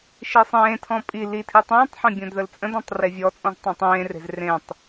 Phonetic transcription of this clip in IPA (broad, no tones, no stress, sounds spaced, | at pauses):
ʃ i sˤ ẽː tʰ ɔ̃ pʼ i l i tʰ i tˤ ũː tˤ ħ ẽ bʲ õ d ð ə l t͡sʼ ə̃ d ɔ̃ tˤ r e vʲ ɔ t͡sʼ ɔ̃ z tˤ õ tˤ ẽː r e̤ z r ẽ tˤ